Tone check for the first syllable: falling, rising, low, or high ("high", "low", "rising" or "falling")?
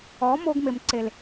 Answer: rising